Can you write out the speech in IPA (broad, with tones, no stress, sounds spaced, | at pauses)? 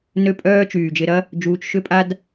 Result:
n ø˦ pʼ œː˦ t͡ʃ yː˨ d͡ʒ ɪ˧ ɾ ɐ˦ | d͡ʒ uː˧ t͡ʃ ʃ ʏ˦ pʼ a˦ d